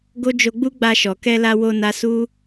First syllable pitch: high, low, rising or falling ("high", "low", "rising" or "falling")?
high